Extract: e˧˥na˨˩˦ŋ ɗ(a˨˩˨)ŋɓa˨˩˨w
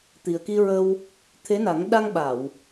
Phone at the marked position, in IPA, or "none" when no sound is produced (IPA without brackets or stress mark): a˧